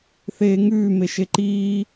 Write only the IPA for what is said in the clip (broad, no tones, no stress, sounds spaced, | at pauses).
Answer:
θ eː ŋ ʉː m e ʃ e ǃ iː